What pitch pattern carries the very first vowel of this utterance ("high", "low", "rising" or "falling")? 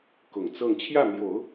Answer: low